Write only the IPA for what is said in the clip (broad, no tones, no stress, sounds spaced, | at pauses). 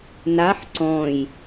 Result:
n a ħ ǀ ɔ̃ j